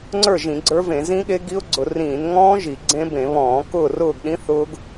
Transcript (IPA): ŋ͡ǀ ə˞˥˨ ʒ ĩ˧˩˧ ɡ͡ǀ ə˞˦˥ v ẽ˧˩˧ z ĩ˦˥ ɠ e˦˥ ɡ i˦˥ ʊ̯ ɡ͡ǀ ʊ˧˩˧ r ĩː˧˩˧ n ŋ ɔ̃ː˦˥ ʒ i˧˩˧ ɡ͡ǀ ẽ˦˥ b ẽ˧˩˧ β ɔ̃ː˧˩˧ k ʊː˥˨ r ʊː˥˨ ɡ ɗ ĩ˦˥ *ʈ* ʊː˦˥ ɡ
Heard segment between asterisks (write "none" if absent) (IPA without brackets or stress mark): θ